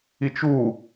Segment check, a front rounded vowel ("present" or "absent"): absent